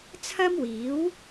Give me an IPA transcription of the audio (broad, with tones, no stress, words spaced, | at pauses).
t͡sʰɐ˥mwiː˨˥w